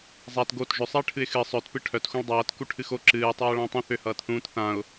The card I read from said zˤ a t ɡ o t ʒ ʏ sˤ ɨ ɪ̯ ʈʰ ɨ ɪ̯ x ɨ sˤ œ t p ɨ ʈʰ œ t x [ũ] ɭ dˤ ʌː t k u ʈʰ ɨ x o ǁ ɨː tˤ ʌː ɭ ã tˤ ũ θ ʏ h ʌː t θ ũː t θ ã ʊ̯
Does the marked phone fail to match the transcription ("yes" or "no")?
no